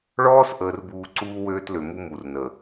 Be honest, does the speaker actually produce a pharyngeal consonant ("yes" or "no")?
no